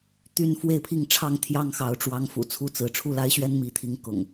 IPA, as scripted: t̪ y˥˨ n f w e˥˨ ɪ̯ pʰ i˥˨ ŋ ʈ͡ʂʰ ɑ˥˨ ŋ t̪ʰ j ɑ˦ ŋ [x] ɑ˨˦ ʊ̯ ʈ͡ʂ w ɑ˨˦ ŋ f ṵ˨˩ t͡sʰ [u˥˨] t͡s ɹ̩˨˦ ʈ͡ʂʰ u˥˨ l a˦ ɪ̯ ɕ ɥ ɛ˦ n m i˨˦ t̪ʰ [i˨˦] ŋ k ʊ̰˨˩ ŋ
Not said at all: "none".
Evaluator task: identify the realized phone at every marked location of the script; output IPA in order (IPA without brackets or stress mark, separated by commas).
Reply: x, u˥˨, i˨˦